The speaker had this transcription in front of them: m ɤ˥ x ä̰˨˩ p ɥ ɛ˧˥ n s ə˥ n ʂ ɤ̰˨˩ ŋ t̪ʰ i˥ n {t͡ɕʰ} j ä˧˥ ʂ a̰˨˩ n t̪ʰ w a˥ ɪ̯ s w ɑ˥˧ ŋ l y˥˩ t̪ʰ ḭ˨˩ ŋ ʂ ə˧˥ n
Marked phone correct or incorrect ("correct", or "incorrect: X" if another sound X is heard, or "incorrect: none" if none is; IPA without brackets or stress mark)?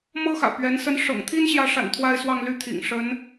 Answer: incorrect: ɕ